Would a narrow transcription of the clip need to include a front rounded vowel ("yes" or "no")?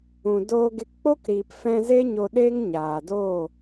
no